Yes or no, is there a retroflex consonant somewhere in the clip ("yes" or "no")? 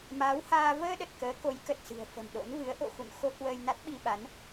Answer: no